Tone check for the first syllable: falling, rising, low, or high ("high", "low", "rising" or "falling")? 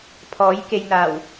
rising